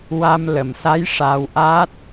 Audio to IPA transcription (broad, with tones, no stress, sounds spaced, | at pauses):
w a˧ m l ə˨˩˨ m s a˧˥ j ʂ a˧ w ʔ a˦˥ t̚